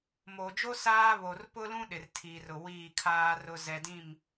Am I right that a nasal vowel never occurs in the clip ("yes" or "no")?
no